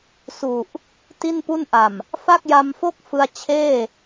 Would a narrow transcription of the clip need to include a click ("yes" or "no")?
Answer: no